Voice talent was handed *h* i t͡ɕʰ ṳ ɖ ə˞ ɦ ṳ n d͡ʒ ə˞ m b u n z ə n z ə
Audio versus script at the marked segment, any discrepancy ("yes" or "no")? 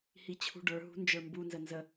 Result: no